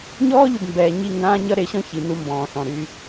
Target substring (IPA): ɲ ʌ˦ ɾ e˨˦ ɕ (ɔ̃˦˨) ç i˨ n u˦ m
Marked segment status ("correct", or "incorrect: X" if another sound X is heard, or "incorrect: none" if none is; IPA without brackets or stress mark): incorrect: ɔ̃˦